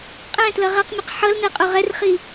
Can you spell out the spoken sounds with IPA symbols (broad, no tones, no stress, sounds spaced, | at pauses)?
qʼ ɛ̃ t l ʌ ʁ a q mʲ a q ħ ʌ l n ɛ qʼ o ʁ ɛ r χ i